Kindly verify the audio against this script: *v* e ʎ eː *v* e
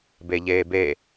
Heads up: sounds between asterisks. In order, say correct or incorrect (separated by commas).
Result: incorrect, incorrect